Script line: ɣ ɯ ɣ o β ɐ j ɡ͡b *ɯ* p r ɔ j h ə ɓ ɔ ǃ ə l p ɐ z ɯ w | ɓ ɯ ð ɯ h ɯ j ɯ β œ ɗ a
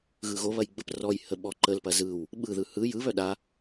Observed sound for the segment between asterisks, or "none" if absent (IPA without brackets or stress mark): ə